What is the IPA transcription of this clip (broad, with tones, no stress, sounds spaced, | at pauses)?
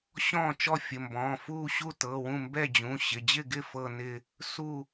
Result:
ɕ ɔ̃ː˥˨ t͡ʃ ɔ˥˨ fʲ ə˩˧˩ m b ɔ̃ː˩˧˩ f uː˥˨ ɕ u˥˨ t ɤ˩˧˩ w ũ˥˨ m b ɛ˥˨ d͡ʑ ũ˩˧˩ ɕ ɪ˩˧˩ d͡ʑ ɪ˥˨ ɡ ɪ˥˨ f ɤ˥˨ n ɪ˥˨ | s u˥˨